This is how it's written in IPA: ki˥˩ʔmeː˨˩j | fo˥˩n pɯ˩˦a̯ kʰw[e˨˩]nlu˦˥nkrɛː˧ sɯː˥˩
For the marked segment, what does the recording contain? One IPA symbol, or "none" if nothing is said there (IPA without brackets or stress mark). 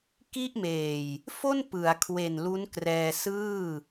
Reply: e˨˩